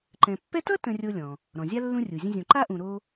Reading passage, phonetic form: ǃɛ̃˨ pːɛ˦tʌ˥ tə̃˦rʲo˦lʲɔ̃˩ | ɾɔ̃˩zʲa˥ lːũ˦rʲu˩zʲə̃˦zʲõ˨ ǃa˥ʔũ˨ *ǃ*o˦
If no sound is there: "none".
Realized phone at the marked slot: ɾ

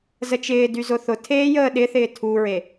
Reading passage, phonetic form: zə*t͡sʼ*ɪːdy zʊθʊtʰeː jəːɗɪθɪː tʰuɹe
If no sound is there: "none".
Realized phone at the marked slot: t͡ʃ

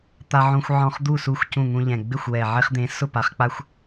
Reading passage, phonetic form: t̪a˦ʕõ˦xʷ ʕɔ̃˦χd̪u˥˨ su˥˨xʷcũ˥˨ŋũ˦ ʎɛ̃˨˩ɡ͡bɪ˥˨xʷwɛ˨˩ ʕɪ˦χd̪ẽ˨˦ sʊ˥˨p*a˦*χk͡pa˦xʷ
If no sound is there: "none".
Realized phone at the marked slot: a˨˦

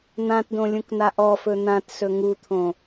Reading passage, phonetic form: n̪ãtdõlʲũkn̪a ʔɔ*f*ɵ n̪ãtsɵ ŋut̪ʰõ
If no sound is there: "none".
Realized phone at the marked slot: f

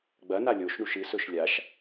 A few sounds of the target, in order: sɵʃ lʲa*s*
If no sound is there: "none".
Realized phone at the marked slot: ʃ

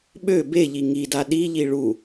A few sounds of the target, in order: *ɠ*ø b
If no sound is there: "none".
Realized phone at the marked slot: ɓ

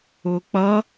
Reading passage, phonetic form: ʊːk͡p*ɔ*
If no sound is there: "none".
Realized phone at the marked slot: ʌ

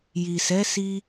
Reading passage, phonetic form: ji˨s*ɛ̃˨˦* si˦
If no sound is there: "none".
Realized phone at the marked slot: ɛ˨˦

